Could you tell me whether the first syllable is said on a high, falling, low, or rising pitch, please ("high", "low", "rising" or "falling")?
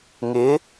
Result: rising